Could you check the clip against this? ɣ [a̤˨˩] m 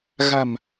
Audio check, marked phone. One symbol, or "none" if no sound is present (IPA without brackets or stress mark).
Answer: a̤˨˩